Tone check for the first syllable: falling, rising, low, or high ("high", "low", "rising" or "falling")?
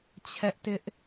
high